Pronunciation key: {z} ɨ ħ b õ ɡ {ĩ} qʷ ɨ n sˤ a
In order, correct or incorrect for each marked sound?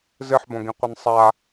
correct, correct

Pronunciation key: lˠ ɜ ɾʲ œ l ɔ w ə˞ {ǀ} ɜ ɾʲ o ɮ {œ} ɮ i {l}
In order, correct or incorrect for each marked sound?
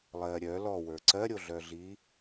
correct, correct, incorrect

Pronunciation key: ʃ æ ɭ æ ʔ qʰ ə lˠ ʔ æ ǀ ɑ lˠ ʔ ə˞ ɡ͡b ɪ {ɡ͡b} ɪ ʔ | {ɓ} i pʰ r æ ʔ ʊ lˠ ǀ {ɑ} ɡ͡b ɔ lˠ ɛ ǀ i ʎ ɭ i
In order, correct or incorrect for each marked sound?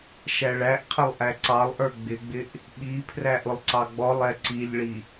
correct, correct, correct

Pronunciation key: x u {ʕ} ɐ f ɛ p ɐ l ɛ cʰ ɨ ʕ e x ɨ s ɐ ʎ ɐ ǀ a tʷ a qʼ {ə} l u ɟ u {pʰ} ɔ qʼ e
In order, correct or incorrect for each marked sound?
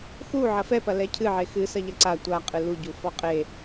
correct, incorrect, incorrect

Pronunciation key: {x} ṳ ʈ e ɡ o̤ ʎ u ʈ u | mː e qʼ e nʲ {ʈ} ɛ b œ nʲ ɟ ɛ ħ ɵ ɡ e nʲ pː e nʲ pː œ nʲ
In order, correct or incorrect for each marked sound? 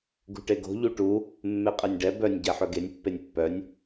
incorrect, incorrect

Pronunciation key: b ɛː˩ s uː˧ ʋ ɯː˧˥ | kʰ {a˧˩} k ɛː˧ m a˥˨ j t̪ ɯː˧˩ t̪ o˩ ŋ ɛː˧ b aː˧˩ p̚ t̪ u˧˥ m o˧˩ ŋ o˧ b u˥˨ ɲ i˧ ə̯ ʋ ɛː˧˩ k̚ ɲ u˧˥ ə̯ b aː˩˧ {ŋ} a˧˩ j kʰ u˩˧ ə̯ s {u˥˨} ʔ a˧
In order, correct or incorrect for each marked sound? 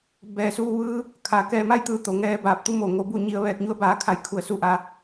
incorrect, incorrect, correct

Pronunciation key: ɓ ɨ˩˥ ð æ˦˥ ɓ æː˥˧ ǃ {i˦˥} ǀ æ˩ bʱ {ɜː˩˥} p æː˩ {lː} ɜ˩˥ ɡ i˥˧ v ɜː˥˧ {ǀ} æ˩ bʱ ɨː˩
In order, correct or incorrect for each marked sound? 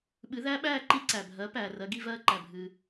correct, incorrect, incorrect, incorrect

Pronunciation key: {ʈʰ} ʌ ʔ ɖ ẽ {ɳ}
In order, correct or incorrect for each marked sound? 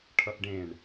correct, correct

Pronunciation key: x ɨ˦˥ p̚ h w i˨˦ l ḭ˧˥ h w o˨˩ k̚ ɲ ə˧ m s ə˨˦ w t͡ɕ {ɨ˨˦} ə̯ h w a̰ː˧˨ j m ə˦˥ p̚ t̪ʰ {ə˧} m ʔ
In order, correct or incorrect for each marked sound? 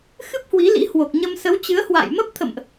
correct, incorrect

